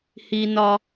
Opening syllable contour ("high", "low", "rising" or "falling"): low